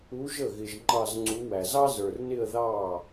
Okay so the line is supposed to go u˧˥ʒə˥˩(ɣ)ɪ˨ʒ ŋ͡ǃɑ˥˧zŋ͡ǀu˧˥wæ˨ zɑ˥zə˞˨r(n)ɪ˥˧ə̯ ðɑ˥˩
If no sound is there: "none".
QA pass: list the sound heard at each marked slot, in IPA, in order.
ɣ, n

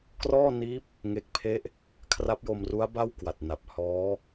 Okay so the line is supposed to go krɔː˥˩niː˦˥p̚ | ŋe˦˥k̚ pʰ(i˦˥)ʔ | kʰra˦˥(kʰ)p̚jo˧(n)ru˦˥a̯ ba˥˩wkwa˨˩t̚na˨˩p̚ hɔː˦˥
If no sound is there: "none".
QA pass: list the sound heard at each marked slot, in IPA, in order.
e˦˥, none, m

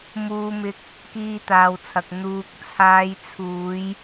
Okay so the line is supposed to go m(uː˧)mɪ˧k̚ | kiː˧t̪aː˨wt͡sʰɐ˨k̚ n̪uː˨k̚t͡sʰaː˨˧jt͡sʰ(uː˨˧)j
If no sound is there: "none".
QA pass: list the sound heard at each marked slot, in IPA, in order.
uː˧, uː˨˧

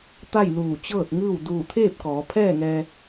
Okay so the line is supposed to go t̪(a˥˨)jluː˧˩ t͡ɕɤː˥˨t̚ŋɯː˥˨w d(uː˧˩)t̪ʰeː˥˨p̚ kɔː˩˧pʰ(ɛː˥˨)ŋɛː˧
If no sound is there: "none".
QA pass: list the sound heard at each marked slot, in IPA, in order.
a˥˨, uː˧˩, ɛː˥˨

